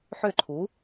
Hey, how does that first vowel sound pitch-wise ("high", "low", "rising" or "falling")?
falling